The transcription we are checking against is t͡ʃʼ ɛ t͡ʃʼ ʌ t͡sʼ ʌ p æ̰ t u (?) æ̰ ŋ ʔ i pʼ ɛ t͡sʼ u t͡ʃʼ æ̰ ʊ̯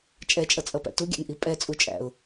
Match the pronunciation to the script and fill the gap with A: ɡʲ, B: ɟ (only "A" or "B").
A